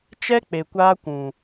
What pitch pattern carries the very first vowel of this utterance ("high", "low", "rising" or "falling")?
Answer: high